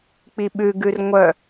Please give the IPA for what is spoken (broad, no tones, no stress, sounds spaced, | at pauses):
k͡p i ɓ ʉ ɡ ʉ r ŋʷ œ